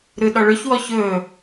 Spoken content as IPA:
ɾ ɯ ɗ ɔ ɭ ɵ ç w ɔ ç ɵː

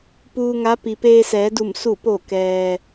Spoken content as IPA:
p uː˧ ŋ a˧˥ p i˩ p eː˧ s ɛː˩˧ d u˧˩ m s u˧˩ p o˧˩ k ɛː˩

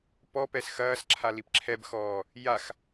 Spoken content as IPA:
p ɔ p ɛ s x ɐː s ǁʰ a l i p ǁʰ ɛ b x ɔː | j a x

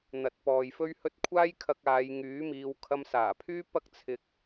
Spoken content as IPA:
n̪ ɐ˨˥ t̚ p ɔː˨ j f ɵ˥ ɥ h ɵ˥ t̚ kʷʰ aː˥ j kʰ ɐ˧ k̚ aː˨˧ j ŋ yː˨˥ m iː˨˧ w kʰ ɐ˧ m s aː˨˩ pʰ yː˥ p ɐ˥ k̚ t͡sʰ ɪ˧ k̚

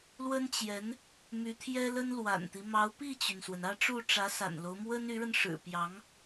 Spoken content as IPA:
l w ə˥ n t͡ɕ j ɛ˧˥ n | m y˧˥ t̪ʰ j ɛ˥ l ə˥ n l w a̰˨˩ n t̪ i˦ m ɑ˧˥ ʊ̯ p i˥˩ t͡ɕ y˩ n s w ə˩ n ä˥˧ ʈ͡ʂ u˥˩ ʈ͡ʂ ä˧˥ s a̰˨˩ n l o˦ ʊ̯ m w ə˥ n y˧˥ ɻ ə˧ n ʂ ɻ̩˨˩ p j ɑ˧˥ ŋ

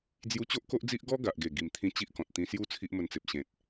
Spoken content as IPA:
d͡z j u˧ t͡ɕ o˦ ʔ k o˦ ʔ d͡z i˦ ʔ ɡ ɔ˦ ɡ a˨ ʔ ɡ e˨˩ ɡ i˨˩ m t̪ʰ ĩ˧ t͡ɕ i˦ ʔ k ɔ̃˨ t̚ t̪ ĩ˧ s j u˦ t͡sʰ i˦ ʔ m ə˧ n t͡s e˨ p̚ ɕ ẽ˨ t̚

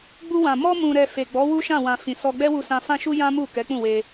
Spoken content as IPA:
ɡ͡b u˧ w ã˨ m ɔ˧ m ũ˨ ɾ ɛ˨ f e˨ ɡ͡b ɔ˨˦ w u˦ ʃ ã˦˨ w ã˨ f ĩ˨ s ɔ˧ ɡ͡b ɛ˦ w u˧ s ã˧ f ã˦ ʃ u˦ j ã˦ m u˦˨ k ɛ˨˦ k͡p ũ˦˨ w e˧

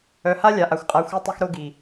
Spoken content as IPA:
œ˨ h a˦ lʲ a˨ ʔ a˨ xʷ qʼ a˨˦ xʷ œ˦ tˤ ɵ˦ x ɾ o˦ ɡ i˨

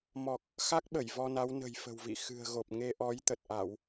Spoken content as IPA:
m ɔ˨˩ k̚ | x a˦˥ k̚ ɓ ə˧˩ j v ɔ˧ n a˨˦ w n ə̤˨˩ j f ə̤˨˩ w v ḭ˧˨ x ɨ̤˨˩ ə̯ ɣ o˨˩ p̚ ŋ e˧ ʔ ɔ˨˦ j t̪ ə˨˩ t̚ ʔ a˧˩˨ w

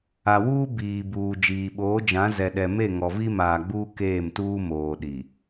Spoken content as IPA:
a˨ w uː˦ b iː˨ b uː˨ d͡ʒ iː˨ ɓ oː˨˦ d͡ʒ ã˨˦ z ɛ˨ ɗ ɛ˨ m e˦˨ ŋ ɔ˨ v i˦ m aː˨ ɡ͡b uː˦ k eː˦˨ m t uː˦ m oː˨ ɗ i˨

